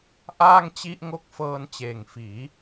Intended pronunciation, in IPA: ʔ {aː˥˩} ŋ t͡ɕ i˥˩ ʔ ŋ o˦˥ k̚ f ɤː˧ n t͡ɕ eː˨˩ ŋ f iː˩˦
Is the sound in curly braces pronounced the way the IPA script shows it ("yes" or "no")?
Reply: yes